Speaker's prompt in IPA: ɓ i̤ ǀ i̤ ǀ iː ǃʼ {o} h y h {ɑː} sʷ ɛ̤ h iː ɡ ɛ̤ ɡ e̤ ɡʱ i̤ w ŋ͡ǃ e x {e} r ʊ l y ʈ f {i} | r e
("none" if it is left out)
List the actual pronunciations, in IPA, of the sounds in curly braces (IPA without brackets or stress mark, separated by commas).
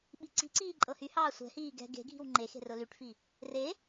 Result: ɤ, ɑː, e̤, i